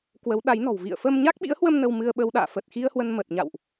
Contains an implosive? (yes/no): yes